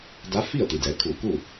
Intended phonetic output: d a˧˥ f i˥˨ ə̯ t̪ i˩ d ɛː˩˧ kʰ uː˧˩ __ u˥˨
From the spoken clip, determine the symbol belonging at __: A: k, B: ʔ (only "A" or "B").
A